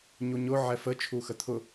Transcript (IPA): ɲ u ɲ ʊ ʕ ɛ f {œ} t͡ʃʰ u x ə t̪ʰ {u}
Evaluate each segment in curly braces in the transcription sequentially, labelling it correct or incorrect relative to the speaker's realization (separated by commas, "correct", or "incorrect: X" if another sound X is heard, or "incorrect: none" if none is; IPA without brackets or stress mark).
incorrect: ə, incorrect: ʊ